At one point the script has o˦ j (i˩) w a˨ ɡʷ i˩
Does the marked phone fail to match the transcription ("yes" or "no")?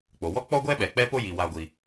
no